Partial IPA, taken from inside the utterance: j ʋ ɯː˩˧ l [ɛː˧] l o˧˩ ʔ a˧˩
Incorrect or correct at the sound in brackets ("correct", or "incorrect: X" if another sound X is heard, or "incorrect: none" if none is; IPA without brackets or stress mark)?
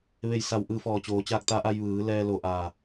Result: correct